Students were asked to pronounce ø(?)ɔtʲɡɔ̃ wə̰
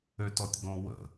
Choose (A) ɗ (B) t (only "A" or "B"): B